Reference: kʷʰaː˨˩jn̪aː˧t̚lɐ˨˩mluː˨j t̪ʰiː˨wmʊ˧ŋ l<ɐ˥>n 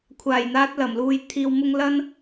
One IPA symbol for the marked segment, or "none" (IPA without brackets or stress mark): ɐ˥